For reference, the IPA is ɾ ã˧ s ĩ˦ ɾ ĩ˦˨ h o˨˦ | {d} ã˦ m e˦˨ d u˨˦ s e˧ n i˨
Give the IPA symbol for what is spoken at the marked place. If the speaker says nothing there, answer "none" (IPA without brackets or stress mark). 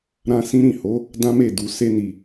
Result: d